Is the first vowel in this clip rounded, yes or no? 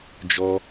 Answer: yes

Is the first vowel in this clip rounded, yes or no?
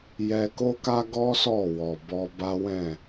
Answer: no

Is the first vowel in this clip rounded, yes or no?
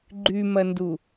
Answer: yes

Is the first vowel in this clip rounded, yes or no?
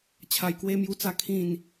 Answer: no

